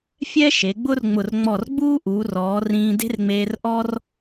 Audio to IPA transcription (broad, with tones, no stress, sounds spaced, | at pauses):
fʲ ɛ˥ ʃ e˩˧ ɡ͡b ʊ˥ r ŋ͡m ʊ˧˩ r ŋ͡m ɔ˧˩ r ɡ͡b uː˥ ʔ uː˩˧ r ɔː˩˧ r ĩː˧ d e̤˥ r ŋ͡m eː˧ r ʔ ɔ˥ r